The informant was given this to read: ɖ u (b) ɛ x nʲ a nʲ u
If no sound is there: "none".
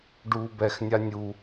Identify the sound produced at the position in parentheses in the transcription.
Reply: b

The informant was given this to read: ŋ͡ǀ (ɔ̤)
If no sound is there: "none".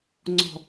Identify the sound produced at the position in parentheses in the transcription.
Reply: ɔ̤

